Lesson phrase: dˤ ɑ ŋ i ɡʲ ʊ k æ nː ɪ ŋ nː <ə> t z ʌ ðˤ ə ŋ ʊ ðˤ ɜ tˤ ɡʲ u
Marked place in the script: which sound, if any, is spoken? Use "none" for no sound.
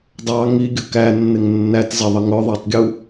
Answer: æ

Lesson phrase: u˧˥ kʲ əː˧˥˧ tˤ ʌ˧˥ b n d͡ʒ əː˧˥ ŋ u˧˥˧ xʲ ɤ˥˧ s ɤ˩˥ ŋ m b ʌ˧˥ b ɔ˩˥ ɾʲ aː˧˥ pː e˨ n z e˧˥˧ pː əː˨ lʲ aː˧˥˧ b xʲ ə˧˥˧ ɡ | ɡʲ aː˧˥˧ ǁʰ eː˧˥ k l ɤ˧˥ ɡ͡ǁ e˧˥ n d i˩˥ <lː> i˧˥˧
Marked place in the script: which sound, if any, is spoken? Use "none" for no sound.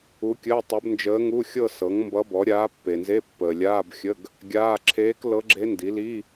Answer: l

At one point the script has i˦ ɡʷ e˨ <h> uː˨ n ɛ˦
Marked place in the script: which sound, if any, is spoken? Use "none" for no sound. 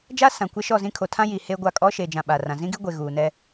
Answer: ɣ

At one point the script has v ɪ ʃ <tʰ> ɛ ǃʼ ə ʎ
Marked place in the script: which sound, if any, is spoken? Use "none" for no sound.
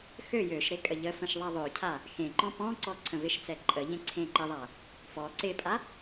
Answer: t͡s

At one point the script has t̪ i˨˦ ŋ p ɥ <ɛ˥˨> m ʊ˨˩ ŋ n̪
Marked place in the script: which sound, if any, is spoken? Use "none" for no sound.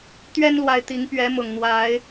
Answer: ɛ˨˦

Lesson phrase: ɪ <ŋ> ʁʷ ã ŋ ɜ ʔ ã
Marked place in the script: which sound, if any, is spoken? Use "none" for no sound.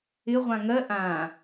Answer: none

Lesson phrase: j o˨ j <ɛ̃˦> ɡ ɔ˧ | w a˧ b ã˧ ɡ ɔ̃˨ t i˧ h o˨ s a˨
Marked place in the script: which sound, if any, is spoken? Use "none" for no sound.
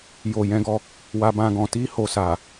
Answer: ɛ̃˨˦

